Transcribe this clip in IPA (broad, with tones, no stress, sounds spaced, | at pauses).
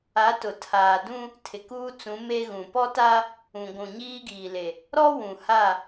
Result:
a˨˦ t ʊ˨ tʰ aː˨ d ũ˦ | tʰ ɪ˨ k uː˦ t͡s ũ˨˦ m e˦ ɣ ũ˨ p ɔ˦ t a˦ | ũ˨ ɡʷ ũ˨ ɲ iː˦ ɡ iː˨ l e˨ | ɾ ɔ˦ w ũ˨ h a˦˨